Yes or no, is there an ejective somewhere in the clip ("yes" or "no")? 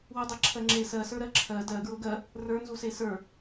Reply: no